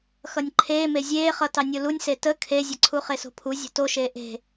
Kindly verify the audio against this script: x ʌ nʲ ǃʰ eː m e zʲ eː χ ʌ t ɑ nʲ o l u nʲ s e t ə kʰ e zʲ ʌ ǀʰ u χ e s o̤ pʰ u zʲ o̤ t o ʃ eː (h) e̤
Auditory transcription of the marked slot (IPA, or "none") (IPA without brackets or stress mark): ʔ